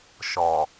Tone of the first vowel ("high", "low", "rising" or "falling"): low